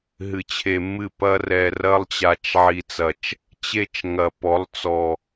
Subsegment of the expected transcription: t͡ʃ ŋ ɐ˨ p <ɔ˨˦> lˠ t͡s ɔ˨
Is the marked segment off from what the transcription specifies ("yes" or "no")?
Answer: no